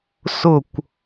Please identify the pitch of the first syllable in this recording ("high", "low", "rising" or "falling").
falling